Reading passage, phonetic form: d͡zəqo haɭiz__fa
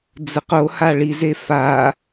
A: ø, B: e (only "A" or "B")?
B